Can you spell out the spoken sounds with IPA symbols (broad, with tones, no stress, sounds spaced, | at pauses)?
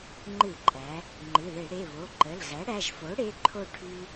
ŋ͡ǃ ɨ˧˩˧ ǃʼ æ˩˧ | ŋ͡ǃ ɨ˩˧˩ ð e˧˩˧ ɽ e˩˧˩ β o˩˧˩ ǃ ə˩˧˩ l ɣ æ˩˥ ɽ æ˩˧˩ ʒ f o˩˥ ɽ e˩˧˩ ǃʰ o˥˨ ʈʰ y˥